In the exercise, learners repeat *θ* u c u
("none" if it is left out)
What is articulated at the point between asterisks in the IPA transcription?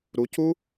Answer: ɾ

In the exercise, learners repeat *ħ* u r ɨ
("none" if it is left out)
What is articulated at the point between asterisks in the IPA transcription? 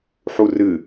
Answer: ħ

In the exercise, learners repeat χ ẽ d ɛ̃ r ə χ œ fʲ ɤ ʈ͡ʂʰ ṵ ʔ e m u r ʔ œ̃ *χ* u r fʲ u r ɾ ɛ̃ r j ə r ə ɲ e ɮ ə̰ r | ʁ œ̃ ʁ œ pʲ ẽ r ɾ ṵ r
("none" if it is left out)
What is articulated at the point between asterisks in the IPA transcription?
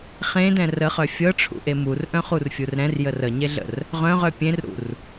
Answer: χ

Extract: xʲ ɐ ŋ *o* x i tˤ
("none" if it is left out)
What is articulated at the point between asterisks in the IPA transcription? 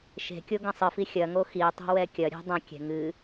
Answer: o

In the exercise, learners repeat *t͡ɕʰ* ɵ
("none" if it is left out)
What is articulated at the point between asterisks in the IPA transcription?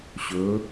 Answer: ɕ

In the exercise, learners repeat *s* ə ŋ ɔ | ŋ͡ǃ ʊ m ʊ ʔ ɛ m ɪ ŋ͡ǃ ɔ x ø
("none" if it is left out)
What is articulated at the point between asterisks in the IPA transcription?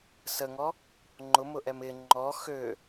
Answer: s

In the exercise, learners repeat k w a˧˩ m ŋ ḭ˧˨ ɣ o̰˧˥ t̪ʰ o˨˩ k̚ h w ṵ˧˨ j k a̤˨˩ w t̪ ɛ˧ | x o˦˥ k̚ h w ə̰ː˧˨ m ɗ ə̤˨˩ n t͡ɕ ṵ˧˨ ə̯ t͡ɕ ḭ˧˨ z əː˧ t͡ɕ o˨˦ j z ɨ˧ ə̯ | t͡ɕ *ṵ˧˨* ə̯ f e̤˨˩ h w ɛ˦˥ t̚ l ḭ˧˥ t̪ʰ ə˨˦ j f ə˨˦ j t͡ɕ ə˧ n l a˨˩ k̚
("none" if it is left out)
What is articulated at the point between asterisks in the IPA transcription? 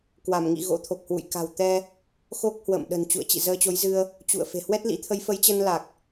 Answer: ṵ˧˨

